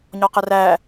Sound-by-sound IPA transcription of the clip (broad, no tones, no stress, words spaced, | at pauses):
ɲɒqəræ